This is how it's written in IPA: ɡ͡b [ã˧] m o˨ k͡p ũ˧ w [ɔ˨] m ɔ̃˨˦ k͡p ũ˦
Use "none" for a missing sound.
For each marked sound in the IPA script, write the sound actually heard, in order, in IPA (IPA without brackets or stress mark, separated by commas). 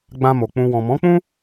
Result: ã˧, ɔ̃˨